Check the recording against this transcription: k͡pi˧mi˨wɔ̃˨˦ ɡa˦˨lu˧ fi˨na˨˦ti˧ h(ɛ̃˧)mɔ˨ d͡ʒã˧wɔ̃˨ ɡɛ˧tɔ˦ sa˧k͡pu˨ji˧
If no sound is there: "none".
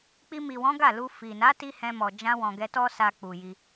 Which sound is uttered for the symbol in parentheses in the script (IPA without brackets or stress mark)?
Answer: ɛ̃˧